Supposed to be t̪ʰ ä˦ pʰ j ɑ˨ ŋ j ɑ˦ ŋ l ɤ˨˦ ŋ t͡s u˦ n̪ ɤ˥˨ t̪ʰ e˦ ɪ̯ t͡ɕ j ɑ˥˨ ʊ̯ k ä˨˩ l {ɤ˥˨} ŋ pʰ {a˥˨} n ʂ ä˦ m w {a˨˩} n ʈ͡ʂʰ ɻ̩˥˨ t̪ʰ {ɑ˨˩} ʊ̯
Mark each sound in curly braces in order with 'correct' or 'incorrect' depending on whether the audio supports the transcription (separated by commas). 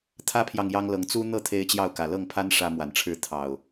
correct, incorrect, correct, correct